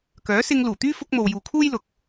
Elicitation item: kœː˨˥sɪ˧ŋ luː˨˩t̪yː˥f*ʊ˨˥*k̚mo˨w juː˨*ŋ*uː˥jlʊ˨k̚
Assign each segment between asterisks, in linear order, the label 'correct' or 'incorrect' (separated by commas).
incorrect, incorrect